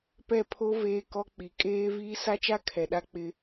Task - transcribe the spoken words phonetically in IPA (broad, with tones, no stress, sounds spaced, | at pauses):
p ɛ˦˨ pʰ o˦ v eː˦ k ɔ˦ k͡p i˨ kʼ eː˦ v iː˦ s a˦ t͡ʃ a˦ kʰ ɛ˨ ɗ a˦ k͡p ɪ˦